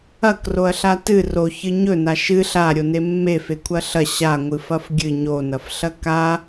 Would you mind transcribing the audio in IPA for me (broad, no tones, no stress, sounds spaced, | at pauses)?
ɐ k r o ɐ̯ ɬ a t ɨ r o ç ɨ ɲ ɵ n a ʃ ɨ ɬ a ɾʲ o n e mː e f e kʷʰ ɐ ɬ ɐ ɕ a ŋʷ ɨ f ɐ f ɡʲ ɨ ɲ o n ɐ f ɬ ɐ k a